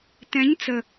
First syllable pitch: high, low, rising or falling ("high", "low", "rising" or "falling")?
rising